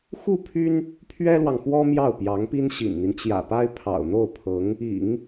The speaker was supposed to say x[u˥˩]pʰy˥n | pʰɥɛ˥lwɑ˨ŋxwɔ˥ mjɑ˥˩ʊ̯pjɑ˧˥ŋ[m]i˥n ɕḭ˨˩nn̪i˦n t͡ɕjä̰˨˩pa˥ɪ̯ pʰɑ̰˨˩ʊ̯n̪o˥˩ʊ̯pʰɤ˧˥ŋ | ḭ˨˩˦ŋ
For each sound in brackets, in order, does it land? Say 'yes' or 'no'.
yes, no

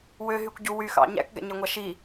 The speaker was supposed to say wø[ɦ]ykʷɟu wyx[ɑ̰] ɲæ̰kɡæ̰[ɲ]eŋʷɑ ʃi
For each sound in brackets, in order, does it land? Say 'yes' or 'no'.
yes, yes, yes

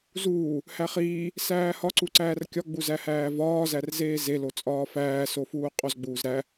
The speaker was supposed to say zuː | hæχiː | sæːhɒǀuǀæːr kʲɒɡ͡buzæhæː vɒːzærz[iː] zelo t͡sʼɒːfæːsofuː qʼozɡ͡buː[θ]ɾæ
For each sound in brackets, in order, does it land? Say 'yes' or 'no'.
no, no

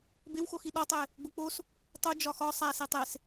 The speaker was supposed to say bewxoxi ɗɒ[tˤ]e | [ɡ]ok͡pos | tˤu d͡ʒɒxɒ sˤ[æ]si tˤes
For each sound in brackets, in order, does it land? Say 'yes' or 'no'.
yes, no, yes

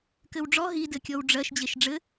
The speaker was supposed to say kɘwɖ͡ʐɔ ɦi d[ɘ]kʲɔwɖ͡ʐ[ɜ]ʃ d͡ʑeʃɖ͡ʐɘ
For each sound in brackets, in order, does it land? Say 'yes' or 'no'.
yes, yes

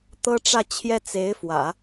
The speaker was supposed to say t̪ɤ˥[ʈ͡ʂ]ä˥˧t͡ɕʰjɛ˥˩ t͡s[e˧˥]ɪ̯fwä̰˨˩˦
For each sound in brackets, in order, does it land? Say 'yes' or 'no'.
yes, yes

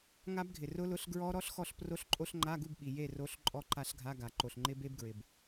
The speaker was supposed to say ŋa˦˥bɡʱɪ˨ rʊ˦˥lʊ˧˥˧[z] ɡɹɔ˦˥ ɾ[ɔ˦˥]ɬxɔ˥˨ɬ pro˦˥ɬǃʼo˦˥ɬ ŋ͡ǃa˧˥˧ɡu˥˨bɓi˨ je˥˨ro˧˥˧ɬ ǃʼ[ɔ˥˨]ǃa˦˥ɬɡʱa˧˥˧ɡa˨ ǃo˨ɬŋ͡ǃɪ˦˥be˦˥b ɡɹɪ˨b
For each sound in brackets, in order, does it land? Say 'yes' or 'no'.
no, yes, yes

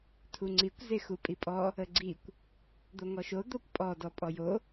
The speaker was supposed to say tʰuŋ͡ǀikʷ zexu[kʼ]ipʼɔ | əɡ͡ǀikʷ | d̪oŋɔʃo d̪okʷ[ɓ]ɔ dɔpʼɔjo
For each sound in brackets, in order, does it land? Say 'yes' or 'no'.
no, no

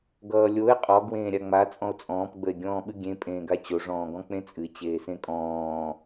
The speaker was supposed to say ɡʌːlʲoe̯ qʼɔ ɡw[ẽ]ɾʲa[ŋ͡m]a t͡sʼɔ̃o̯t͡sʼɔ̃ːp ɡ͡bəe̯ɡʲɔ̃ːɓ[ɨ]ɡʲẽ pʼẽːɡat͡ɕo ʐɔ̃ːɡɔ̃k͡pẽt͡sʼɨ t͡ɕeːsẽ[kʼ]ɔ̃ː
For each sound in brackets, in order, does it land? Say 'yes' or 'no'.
no, yes, yes, yes

